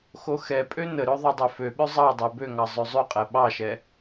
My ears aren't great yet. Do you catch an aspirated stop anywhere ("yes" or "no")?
no